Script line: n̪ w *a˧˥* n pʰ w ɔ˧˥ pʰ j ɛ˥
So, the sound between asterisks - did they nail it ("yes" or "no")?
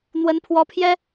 no